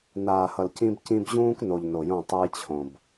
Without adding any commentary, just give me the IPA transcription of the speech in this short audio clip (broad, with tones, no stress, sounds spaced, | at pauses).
n aː˨ h ʌ˨ l c ĩ˦ b c ĩ˦ b ʑ ũː˦ k n o˨ ʎ n o˨ j õ˦˨ tˤ ɨ˦ j t͡ɕʰ õ˨ b